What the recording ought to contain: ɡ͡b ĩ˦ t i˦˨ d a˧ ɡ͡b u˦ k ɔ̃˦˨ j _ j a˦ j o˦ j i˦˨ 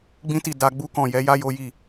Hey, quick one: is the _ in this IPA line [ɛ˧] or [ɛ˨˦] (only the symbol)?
ɛ˨˦